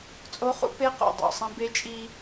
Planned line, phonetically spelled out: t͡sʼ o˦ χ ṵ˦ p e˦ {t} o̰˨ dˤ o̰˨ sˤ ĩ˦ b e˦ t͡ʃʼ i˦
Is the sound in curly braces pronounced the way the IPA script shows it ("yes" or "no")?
no